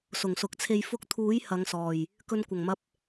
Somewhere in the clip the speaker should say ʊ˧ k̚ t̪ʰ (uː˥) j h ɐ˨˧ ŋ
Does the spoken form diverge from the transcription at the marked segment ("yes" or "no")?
yes